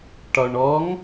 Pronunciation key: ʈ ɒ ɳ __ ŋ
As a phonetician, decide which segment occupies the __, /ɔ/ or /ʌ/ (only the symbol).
ɔ